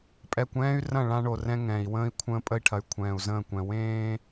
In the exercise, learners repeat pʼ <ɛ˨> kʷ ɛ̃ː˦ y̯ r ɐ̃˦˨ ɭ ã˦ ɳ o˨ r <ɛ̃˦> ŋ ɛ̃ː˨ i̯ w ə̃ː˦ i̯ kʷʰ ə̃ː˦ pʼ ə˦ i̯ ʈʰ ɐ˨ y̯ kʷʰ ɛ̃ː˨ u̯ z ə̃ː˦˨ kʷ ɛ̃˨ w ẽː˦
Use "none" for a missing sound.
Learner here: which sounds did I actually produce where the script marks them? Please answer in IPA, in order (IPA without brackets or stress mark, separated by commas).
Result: ɛ˨, ɛ̃˦